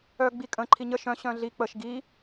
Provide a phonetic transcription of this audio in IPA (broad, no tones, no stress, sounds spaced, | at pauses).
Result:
œ ɡ͡b i kʼ ə̃ ǃʰ i ɲ ə ʃ œ̃ ɕ œ̃ ɮ i k͡p ə ʃ ɡ i